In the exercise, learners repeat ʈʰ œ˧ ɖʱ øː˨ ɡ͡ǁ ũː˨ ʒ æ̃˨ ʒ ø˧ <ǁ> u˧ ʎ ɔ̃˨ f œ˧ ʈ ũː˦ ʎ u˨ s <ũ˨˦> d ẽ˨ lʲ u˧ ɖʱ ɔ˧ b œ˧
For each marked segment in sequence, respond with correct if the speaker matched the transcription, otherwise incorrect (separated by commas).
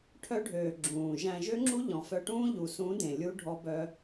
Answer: incorrect, correct